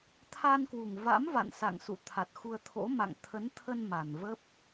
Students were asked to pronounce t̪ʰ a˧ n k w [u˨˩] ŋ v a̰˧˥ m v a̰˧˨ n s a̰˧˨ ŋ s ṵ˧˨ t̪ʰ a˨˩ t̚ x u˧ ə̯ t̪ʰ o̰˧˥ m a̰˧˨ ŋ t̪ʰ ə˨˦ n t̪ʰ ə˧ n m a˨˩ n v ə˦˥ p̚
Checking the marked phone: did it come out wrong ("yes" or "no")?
no